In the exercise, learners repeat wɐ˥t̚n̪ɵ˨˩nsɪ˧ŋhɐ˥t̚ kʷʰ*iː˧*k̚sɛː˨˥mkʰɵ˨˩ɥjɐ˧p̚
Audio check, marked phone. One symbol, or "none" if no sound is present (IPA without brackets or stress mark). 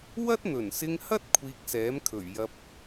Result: iː˧